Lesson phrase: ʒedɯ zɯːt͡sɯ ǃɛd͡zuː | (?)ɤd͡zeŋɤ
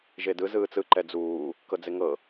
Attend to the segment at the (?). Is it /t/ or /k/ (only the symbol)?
k